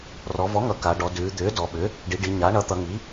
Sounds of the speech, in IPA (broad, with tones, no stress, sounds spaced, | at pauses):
r ɔ˩˧ v ɔ˩˥ ŋ ʌ˩˧ k a˩˧ ɖ ɔ˩˧ d ʉː˩˧ d̪ ʏː˩˥ d ɔ˩˧ ɓ ʏ˩˥ | ɖ i˩˧ ɖ i˩˧ ɲ a˩˥ ɳ ʌ˩˥ t̪ ʌ˩˧ ŋ i˩˥